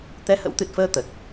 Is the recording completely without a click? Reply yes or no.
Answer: yes